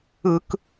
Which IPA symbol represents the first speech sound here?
ɯ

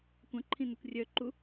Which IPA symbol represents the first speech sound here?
kʷ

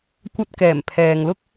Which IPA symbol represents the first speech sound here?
kʷ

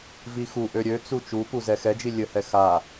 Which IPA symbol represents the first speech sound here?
v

